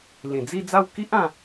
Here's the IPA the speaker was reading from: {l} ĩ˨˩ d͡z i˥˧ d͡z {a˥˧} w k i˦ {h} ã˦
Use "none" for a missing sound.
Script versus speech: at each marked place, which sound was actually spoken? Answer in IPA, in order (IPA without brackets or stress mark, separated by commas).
l, a˥˧, ʔ